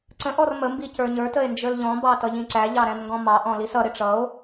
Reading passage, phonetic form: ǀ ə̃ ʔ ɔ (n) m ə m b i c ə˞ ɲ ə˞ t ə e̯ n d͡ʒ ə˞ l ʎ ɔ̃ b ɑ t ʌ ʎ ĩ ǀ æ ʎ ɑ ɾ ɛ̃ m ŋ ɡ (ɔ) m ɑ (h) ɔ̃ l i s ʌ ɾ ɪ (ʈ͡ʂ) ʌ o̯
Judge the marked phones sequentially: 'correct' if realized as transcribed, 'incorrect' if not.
incorrect: r, incorrect: ɔ̃, incorrect: ʔ, correct

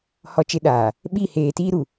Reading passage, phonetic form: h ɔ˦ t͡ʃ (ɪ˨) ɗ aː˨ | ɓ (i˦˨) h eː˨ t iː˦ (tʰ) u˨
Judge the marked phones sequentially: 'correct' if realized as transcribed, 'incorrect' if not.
incorrect: ɪ˦, correct, incorrect: ɾ

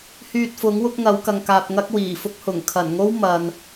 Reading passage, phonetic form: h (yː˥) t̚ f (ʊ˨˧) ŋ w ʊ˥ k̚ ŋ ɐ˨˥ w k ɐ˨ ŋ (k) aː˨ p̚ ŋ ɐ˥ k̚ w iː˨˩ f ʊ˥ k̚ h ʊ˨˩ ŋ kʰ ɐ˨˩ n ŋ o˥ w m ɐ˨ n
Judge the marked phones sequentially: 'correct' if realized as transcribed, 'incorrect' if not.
incorrect: yː˧, incorrect: ʊ˨˥, correct

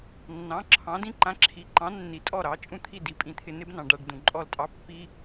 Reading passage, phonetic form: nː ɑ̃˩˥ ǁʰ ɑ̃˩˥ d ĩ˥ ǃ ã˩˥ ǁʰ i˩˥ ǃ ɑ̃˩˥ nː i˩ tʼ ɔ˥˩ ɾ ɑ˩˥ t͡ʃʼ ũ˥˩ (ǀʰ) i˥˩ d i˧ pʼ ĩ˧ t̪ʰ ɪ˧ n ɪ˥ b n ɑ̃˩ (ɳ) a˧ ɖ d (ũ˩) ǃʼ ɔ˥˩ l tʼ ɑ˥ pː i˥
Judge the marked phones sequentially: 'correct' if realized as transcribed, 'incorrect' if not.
incorrect: t̪ʰ, incorrect: ɖ, correct

